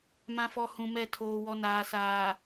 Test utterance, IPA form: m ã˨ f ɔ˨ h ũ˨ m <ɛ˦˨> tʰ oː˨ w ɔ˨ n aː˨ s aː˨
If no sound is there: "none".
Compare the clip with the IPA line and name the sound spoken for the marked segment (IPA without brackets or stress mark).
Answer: ɛ˦˨